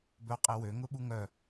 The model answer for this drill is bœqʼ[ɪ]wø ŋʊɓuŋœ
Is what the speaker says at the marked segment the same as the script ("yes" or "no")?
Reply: yes